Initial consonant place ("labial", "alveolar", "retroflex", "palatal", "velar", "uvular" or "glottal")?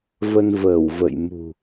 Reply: labial